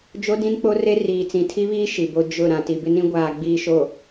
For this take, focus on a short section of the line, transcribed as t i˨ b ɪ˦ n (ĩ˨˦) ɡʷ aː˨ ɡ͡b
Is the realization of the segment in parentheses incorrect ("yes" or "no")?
yes